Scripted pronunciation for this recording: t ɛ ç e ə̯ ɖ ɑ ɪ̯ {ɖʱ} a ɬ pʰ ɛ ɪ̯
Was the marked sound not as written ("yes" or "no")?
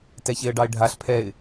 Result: no